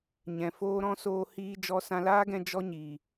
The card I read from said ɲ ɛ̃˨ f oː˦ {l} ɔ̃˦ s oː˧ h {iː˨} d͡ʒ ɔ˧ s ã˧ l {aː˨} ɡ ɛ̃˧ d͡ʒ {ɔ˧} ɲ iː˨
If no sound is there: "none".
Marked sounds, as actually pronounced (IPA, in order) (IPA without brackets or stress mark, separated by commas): ɾ, iː˦, aː˦, ɔ˦